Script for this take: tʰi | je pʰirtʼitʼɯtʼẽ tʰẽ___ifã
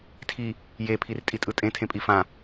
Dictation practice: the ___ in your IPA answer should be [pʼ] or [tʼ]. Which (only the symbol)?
pʼ